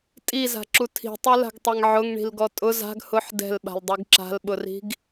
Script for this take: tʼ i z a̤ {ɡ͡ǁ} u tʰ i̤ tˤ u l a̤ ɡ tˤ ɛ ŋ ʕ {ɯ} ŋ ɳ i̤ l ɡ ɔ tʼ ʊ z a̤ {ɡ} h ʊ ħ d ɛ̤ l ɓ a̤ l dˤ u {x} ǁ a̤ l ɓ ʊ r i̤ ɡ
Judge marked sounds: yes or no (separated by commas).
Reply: no, no, yes, no